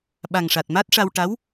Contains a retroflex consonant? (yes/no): yes